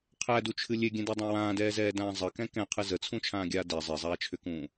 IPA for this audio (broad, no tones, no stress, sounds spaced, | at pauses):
qʰ æ d u t͡ʃʰ ɨ lʲ e ɡʲ ɛ̃ d ɛ dˤ ã w ãː d ɛː z ɛː d ãː zˤ ə k ɛ̃ k ɛ̃ qʰ ɨ z ə t͡sʰ ũ t͡ʃʰ ãː ɡʲ aː d ɛ zˤ e zˤ aː t͡ʃʰ ʏ k ũː